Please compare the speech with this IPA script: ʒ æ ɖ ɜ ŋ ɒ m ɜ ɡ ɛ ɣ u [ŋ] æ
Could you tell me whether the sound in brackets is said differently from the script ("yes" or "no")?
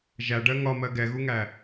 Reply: no